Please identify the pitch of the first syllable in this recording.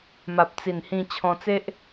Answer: low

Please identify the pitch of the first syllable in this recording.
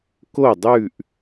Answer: falling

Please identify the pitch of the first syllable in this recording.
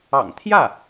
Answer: low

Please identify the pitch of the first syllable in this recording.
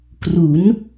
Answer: rising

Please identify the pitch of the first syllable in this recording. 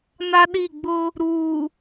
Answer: high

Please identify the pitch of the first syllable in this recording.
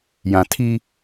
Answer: low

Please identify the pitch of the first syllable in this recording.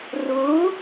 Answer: rising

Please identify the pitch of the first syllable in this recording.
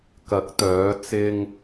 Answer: rising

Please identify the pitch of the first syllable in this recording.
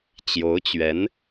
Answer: rising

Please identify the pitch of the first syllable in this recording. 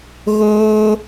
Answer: high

